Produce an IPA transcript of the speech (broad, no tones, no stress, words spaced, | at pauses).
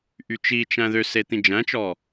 ʔyt͡ʃit͡ʃæ̃ ðøse t̪ĩd͡ʒæ̃t͡ʃɔ